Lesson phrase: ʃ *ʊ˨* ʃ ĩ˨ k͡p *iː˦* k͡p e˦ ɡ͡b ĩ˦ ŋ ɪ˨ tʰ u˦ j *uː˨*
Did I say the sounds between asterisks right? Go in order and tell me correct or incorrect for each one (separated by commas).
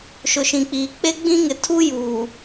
correct, incorrect, correct